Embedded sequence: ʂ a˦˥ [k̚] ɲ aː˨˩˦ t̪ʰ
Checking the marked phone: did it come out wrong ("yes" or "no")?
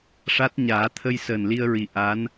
yes